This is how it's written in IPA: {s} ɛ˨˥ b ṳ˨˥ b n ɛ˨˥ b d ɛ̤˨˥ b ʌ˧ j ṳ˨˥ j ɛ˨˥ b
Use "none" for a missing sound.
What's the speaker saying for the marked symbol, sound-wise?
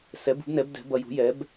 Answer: s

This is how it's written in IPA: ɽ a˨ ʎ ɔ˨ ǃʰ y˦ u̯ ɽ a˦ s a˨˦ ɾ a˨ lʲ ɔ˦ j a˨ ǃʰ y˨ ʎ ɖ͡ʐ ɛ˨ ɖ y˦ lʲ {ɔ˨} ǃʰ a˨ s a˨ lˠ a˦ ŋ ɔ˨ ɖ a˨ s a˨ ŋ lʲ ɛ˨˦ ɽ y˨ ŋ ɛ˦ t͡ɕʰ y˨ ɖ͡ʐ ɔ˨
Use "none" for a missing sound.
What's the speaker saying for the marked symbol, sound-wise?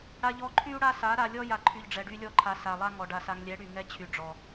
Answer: ɔ˦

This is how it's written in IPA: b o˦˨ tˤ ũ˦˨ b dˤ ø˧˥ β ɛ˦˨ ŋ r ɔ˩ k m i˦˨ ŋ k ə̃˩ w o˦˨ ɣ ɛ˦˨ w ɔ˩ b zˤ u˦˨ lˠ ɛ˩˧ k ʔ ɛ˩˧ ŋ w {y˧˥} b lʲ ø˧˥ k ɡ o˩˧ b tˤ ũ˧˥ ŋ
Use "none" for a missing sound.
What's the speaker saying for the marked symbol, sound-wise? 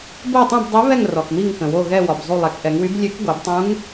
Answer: y˧˥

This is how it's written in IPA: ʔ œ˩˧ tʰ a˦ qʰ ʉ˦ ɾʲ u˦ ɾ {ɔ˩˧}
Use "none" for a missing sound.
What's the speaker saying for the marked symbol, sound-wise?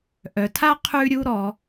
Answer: ɔ˩˧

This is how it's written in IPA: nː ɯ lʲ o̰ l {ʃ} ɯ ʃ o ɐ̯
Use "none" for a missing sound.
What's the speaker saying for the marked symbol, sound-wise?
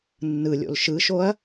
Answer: ʃ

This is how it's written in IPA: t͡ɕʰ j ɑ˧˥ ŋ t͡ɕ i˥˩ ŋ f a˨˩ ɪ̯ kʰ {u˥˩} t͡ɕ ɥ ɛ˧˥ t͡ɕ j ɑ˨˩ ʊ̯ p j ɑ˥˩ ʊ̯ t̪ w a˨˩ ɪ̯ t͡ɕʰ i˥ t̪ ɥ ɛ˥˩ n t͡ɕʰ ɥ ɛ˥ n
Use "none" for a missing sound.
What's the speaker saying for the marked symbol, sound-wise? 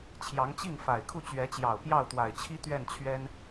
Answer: u˥˩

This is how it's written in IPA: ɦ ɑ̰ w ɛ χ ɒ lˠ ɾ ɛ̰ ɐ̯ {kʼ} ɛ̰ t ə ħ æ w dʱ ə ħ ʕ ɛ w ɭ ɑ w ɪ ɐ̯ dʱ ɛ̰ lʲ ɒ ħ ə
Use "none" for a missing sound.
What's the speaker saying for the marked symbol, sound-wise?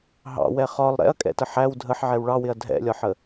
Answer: kʼ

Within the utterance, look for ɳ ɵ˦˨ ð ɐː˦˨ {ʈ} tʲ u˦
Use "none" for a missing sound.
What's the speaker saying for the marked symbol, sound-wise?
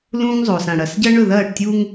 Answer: ʈ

